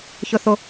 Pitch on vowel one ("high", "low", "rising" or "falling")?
low